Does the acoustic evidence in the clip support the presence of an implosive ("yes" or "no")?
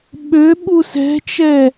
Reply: yes